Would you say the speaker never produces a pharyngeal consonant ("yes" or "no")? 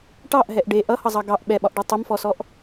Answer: yes